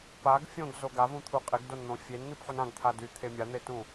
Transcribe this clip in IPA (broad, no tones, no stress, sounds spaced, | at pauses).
p a ɡ fʲ õ ɡ z o ɡ a v ũ t̪ʰ u qʼ e ɡ d o n n̪ õ fʲ e n n̪ i p ħ u n ã ɡ t̪ʰ a d y t̪ʰ e mʲ a n̪ e t ũ